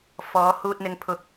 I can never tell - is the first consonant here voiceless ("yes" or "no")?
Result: yes